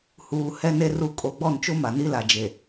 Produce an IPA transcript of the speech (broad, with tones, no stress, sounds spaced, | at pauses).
h uː˨ h ɛ˦ n e˦ r u˦˨ kʼ o˨ ɡ͡b ɔ˦˨ n t͡ʃ o˦ m a˨ n i˦ l a˨ d͡ʒ e˨